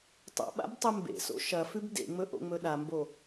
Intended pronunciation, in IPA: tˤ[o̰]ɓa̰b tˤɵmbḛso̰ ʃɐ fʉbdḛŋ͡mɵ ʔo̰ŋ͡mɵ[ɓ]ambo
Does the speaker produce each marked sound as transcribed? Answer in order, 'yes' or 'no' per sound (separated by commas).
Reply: yes, no